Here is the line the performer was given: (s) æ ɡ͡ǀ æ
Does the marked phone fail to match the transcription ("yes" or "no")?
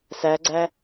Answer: no